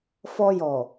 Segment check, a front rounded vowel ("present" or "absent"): absent